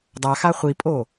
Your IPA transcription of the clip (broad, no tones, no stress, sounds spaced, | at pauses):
dˤ a x a χʷ i pʼ o